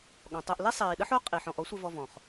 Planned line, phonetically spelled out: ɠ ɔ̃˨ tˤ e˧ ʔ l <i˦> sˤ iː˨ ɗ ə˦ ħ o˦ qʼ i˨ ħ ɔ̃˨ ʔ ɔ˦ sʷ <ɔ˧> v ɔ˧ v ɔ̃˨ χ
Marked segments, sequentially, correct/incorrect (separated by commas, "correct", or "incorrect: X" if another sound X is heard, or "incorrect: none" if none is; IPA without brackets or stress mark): correct, incorrect: ə˧